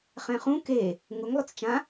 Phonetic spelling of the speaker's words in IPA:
χ ɛ̃ χ ũ k e | ŋ ʊ ŋ lˠ ʊ t͡s t͡ʃ ã

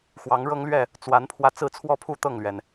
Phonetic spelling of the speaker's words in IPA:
x w ɑ˨˦ ŋ ɻ ɤ˦ ŋ l ɥ ɛ˥˨ | t͡s w a˨˦ n pʰ w ä˧ t͡s ɹ̩˥˨ t͡sʰ w ɔ˦ pʰ u˥˨ t̪ ɤ˥˨ ŋ l ɥ ɛ˩ n

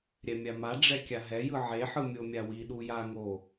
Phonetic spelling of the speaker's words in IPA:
ɾʲ ɛ mʲ a m a ɖ͡ʐ ɛ kʲ a ɦ ɛ j ɯ ʕ e ħ ɯ mʲ o mʲ a w i ɗ u j a ŋ o

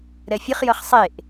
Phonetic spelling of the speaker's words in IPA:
ɾ ɛ fʲ ə χ j ʌ χ sˤ e ʔ

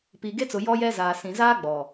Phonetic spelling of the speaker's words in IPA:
p i˨ ɡ e˦ t͡s ʊ˨ j ɔ˦ j ɛ˦ z aː˨ s ĩ˨ z aː˦ ɡ͡b ɔ˨

